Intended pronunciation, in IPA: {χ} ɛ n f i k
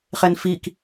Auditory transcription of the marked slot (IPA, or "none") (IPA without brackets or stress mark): χ